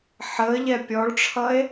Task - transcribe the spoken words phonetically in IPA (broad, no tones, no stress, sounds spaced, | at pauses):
ħ əː ʎ ɛ pʲ ɔ ɭ ʈ͡ʂʰ ʌ e̯